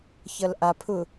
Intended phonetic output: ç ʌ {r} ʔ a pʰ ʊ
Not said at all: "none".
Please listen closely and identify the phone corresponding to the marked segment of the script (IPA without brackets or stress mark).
l